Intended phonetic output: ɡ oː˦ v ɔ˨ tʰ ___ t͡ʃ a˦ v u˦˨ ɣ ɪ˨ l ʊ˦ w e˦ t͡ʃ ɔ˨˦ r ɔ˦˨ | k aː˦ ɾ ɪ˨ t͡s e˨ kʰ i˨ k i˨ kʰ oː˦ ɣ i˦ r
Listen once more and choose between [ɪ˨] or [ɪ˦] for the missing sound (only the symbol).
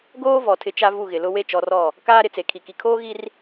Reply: ɪ˦